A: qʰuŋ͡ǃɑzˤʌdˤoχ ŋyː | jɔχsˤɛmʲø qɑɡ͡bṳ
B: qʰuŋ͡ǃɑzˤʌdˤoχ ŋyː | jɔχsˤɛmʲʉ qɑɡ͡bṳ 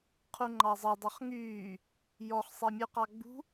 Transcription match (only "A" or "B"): B